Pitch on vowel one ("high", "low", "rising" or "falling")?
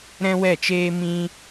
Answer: high